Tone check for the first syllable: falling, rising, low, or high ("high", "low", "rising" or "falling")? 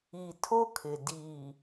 low